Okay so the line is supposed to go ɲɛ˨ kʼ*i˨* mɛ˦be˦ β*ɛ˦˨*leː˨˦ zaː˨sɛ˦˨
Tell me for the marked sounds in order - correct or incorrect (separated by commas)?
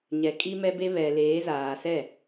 incorrect, incorrect